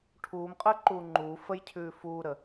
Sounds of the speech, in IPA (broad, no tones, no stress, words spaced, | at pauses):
ʈʰuːm qʼəːǃuːŋ͡ǃuː fəjcʰʉː fuːɾə